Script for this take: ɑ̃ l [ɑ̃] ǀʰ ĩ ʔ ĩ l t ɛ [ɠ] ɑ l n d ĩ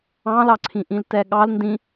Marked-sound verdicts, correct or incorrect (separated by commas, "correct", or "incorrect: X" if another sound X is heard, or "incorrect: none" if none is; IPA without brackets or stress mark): incorrect: ɑ, correct